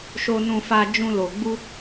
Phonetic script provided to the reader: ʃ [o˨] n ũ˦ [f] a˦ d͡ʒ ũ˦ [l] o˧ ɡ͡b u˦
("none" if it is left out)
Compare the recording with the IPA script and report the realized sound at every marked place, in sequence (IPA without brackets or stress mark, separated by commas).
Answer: o˦, f, l